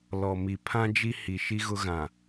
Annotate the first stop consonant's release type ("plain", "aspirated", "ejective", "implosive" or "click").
aspirated